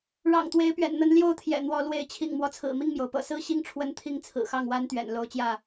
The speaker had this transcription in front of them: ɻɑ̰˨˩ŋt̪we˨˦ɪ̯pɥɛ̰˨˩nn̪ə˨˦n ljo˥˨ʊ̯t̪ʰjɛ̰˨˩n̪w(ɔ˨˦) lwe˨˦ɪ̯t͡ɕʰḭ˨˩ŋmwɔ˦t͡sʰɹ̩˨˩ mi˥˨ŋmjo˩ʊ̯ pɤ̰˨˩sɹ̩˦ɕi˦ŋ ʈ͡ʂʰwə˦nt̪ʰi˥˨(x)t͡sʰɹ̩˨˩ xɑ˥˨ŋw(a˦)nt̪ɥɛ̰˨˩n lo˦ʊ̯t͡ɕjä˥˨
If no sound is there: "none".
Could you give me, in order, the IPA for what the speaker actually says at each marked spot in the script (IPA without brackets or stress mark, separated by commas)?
ɔ˨˦, ŋ, a˦